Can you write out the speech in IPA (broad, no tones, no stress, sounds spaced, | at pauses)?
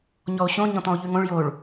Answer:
ɲ ɔ o̯ ɕ õ ɲ ɔ̃ t̪ ɔ̃ o̯ ʎ ʉ ŋ õ ɭ j o ɭ